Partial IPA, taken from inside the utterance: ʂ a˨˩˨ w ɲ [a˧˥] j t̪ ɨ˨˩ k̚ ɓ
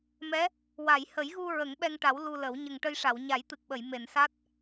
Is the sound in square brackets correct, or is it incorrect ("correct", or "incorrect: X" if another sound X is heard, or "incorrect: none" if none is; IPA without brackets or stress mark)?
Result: incorrect: a˨˩˦